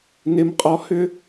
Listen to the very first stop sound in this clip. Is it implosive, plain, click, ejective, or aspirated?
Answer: ejective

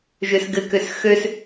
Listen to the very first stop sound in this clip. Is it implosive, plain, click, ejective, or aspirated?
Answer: plain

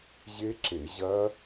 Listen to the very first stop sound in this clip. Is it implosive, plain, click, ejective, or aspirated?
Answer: click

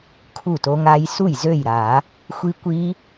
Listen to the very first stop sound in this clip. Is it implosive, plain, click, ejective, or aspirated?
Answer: aspirated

